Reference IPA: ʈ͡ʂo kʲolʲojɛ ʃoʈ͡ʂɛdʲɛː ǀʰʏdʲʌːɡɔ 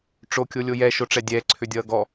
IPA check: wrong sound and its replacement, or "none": none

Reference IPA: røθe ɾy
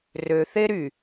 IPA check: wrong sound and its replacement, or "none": none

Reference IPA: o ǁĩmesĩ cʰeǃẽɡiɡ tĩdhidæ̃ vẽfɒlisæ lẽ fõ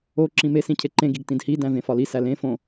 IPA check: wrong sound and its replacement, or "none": none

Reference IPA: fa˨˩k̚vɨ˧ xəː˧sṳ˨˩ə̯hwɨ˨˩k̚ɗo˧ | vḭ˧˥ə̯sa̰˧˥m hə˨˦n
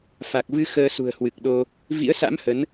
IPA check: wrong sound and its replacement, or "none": none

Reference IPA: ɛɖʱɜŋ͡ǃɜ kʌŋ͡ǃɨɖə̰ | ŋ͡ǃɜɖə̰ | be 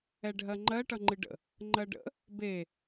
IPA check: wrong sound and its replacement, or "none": k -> ʈ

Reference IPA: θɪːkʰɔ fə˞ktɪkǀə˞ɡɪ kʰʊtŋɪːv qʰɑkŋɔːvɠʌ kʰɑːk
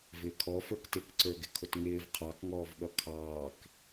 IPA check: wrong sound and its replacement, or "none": θ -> v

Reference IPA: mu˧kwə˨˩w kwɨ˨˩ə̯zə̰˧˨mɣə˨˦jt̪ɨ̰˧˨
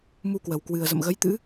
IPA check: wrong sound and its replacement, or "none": ɨ̰˧˨ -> ɨ̰˧˥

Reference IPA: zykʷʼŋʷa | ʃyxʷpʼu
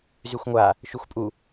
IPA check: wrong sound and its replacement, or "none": kʷʼ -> xʷ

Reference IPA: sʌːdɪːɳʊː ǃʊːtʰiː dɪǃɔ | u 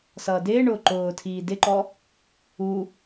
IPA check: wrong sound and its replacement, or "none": none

